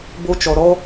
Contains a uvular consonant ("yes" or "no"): no